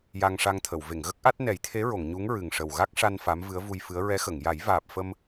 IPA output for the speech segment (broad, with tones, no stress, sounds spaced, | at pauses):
j a˧ ŋ ʂ a˧ ŋ t̪ʰ ə˨˩˨ w v e˨˩˨ ŋ ɣ ə˦˥ k̚ ʔ a˦˥ t̚ n ɛ˨˩˦ j t̪ʰ e˧˥ ɹ o˨˩˨ ŋ ɲ u˧˥ ŋ ɹ ɨ˨˩ ŋ ʂ ə˨˩ w ɣ a˦˥ k̚ ʂ a˧ n f a˧˥ m v ɨ˧˥ ə̯ v u˧ j f ɨ˧˥ ə̯ ɹ ɛ˧˥ x ə˨˩˨ ŋ j a˨˩˦ j v aː˨˩ p̚ f ə˧ m